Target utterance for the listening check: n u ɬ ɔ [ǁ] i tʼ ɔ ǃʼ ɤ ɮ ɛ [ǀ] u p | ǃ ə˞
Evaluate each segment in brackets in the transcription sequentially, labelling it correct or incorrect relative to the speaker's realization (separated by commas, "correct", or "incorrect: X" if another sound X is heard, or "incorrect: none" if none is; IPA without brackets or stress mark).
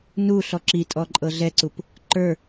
correct, correct